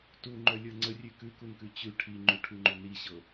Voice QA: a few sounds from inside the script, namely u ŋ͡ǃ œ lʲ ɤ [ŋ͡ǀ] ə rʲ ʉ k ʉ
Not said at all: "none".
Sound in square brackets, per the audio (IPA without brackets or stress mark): ŋ͡ǀ